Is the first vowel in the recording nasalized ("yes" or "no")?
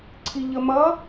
no